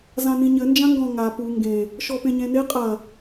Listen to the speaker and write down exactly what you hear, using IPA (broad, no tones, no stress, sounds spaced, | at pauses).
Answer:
z ã n ĩ ɲ ɘ n d͡ʒ ã ŋ ɡ ɔ̃ ŋ a p u ŋ ɡ ẽ | ʃ ɔ p ẽ ɲ ẽ n e qʼ ɐ